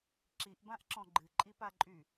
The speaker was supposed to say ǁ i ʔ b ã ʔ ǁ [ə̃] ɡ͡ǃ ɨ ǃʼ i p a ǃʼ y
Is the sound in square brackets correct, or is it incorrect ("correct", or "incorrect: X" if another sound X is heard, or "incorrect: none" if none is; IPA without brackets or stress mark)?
incorrect: ɔ̃